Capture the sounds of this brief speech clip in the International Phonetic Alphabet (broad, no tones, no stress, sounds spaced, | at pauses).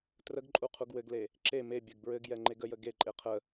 t r ə ɡ ǃʼ u qʰ u ɡ w ɘ ɡ l e | ǁ e m e bʲ ɘ ɡ b ɹ ɘ ɡ j ɛ ŋ͡ǃ e ɡ ə j ə ɡ e ǃʼ e qʰ ə